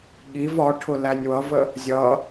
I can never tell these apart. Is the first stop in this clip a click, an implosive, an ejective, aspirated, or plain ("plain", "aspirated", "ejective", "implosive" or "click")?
implosive